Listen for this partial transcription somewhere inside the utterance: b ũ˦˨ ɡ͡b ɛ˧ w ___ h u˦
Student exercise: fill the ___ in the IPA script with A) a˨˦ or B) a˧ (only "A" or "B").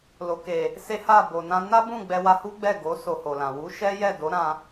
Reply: B